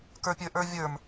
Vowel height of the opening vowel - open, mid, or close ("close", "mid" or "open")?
mid